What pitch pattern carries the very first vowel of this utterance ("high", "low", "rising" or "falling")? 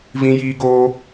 high